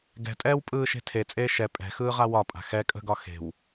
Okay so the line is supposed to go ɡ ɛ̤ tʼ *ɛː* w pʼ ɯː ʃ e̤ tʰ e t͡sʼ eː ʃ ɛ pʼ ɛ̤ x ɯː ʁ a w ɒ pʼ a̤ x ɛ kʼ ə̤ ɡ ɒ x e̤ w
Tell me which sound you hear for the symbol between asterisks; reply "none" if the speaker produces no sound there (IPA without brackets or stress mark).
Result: ɛː